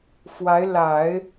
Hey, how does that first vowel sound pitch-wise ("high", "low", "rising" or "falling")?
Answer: rising